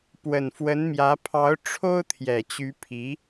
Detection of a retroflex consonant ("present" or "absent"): present